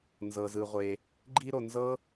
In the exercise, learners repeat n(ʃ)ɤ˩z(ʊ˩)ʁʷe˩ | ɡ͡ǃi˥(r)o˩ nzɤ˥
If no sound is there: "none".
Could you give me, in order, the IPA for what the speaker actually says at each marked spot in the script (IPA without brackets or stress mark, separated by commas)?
z, ɯ˩, ɾ